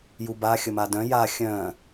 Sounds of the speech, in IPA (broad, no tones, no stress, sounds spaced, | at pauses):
j u b a xʲ ə m a d œ̃ j a xʲ œ̃